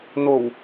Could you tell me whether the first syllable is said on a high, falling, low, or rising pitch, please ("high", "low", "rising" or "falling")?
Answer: low